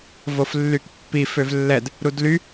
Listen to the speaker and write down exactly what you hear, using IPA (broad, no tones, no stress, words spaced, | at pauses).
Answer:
voflːykpːi føvlːɛd | ɾudly